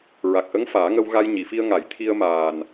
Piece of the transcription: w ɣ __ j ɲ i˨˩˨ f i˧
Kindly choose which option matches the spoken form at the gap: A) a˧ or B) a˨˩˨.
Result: A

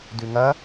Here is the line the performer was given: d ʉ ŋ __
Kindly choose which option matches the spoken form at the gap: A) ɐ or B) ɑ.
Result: A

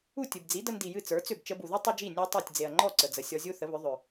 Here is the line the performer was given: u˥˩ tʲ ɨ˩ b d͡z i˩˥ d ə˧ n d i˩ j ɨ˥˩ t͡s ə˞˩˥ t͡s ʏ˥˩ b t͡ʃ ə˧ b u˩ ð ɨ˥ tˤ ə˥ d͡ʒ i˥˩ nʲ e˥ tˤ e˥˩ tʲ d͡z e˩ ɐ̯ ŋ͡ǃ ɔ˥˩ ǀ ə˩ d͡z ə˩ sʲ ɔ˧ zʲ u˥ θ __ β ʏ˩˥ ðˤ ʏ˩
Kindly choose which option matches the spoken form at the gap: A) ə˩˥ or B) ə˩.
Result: A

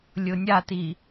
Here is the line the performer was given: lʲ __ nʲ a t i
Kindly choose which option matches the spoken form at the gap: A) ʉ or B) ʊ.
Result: B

